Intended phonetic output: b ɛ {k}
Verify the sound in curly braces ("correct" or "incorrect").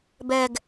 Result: incorrect